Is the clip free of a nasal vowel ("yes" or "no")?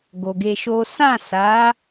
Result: no